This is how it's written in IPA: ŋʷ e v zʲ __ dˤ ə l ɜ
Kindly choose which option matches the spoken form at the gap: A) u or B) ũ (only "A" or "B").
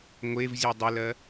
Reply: A